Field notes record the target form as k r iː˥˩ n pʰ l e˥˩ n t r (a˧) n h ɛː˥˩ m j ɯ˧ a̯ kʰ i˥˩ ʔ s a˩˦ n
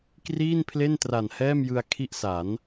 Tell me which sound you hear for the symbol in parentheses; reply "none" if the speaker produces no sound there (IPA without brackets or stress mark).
a˨˩